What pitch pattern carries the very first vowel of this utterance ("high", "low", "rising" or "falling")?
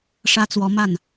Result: high